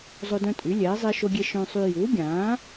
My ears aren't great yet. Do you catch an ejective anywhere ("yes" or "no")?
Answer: yes